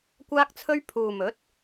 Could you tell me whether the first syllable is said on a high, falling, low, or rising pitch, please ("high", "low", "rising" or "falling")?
high